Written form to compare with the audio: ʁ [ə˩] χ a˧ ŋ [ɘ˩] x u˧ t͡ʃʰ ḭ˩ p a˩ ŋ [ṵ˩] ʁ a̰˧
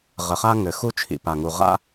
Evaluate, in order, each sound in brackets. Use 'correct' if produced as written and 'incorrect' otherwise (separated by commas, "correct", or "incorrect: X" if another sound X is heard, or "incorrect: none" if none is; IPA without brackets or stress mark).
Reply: correct, correct, incorrect: u˩